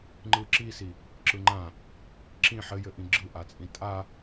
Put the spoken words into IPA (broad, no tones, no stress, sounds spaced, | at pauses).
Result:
ŋ͡ǃ ɯ ǁ i s i | ǁ ɯ ŋ͡ǃ ã | ǁ ĩ ħ ɘ j ɘ ʔ ĩ ɡ͡ǁ ɯ ʔ a t͡sʼ ĩ tʼ a